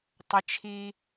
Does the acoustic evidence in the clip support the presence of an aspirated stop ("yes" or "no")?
yes